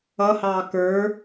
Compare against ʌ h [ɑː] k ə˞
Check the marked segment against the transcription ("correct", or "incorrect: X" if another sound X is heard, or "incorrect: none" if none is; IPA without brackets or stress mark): correct